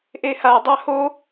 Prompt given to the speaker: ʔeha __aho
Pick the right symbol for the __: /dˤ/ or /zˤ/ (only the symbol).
dˤ